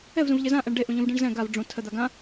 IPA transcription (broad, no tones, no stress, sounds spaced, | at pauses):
ɛ v z ũ v ʎ e z ã ʔ ɛ ɳ ɖ e ʔ ũ ʎ ũ v ɖ ĩ ɳ z ɛ̃ ɡ a v ɖ͡ʐ ũ tʰ ə d̪ a ɡ ã